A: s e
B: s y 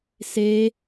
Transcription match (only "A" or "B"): A